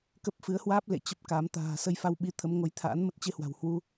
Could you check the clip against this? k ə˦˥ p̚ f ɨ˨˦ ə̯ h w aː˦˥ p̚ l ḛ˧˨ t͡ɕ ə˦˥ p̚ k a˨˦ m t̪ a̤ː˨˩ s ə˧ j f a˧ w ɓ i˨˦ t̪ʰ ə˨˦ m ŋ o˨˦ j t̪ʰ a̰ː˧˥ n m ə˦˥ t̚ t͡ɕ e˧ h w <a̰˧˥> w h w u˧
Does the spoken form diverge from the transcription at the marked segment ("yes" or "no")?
yes